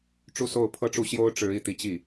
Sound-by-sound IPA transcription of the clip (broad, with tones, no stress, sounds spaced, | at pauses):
ʈ͡ʂ u˥˧ s o˥˩ ʊ̯ pʰ ɤ˥ ʈ͡ʂ u˥˩ ɕ j o˥ ʊ̯ ʈ͡ʂ ɻ̩˧˥ i˥˩ t̪ i˧˥ t͡ɕ i˥˩